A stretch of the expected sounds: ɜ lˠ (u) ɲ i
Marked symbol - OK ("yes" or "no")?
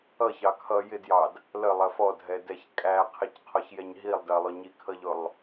no